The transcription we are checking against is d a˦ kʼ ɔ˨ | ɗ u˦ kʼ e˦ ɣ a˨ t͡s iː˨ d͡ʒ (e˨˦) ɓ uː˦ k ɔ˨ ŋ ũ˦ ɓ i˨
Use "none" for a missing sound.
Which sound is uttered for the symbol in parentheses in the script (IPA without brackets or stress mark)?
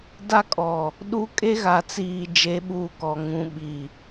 e˨˦